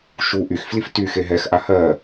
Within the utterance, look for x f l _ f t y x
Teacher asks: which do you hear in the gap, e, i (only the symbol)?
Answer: i